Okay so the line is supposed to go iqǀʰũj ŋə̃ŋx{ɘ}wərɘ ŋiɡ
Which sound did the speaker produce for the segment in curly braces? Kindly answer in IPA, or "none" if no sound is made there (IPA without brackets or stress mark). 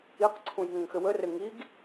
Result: ɘ